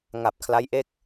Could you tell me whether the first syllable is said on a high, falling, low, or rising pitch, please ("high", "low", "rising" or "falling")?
low